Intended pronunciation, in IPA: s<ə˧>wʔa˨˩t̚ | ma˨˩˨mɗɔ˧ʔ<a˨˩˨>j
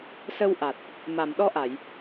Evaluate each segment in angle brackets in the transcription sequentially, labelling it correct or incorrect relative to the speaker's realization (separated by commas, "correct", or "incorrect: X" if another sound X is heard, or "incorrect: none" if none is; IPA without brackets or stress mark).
correct, correct